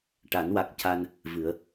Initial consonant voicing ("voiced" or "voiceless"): voiceless